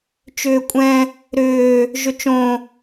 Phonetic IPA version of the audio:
t͡ʃ ʏː kʷʼ ɛ̃ | ɾ ʏː | ʒ ʏ t͡ʃ õ

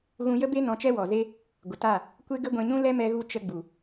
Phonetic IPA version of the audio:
ɣ ũ˧ j ə˦ b e˦ n ɔ̃˧ t͡ʃ ɛ˦ w ɔ˨ z e˦ | ɡʷ ə˨ t a˦˨ | kʷ e˦ ɡ ə˦ ɡʷ ɛ̃˧ ɲ ũ˦ l ɛ˦ m ɛ˧ ɣ u˧ t͡ʃ ə˧ ɡ͡b u˨

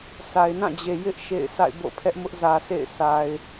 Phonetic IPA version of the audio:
sʰ a˨ ɪ̯ n ã˦˨ d͡ʑ e˨ j ɪ˦ ʔ ʃ ḛ˦˨ ɪ̯ s a̰˦˨ ɪ̯ b o̰˦˨ pʰ ɛ˦ ʔ m ʊ˦ ʔ z ä˨ s ḛ˦˨ ɪ̯ sʰ a˨ ɪ̯

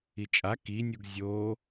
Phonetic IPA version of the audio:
i t͡ʃʼ a k i nʲ u ɡ zʲ o

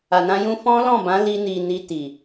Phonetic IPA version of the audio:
a˧ n ã˦ j ũ˦ f ɔ̃˦ l ɔ̃˦˨ b ã˨˦ l i˦ n i˧ n i˧ t i˨

